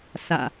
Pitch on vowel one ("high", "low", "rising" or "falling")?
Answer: low